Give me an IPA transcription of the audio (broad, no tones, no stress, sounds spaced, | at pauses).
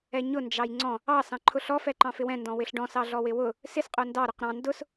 ɛ ɲ ʊ n d͡ʒ ɑ j ŋ͡ǀ ɔ̃ | ɑ s ɑ̃ ǃʰ ʊ ɬ ɔ f ɛ ǃ ɑ̃ f ɪ w ɛ̃ n d ɔ̃ w ɪ ɬ ɖ ɔ̃ s ɑ ɮ ɔ w ɪ w ʊ | s ɪ s qʼ ʊ n d ɑ ɾ ʊ q ɾ ɑ̃ n d ʊ s